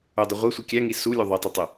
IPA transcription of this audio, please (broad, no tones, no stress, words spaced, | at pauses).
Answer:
udˤi ʁʷesʷi kʲæŋi sulʲu ðˤitˤutˤo